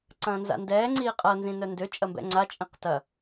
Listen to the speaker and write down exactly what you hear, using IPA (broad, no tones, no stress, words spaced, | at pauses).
ǀɐ̃ːnza̰ndɛː ŋ͡ǀiːqʼɐ nzĩnœndø t͡ʃʼɐmbɛ̰ŋ͡ǀa t͡ʃʼĩqtɐ